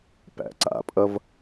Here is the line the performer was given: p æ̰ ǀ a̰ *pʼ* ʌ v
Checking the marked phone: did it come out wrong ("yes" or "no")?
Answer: no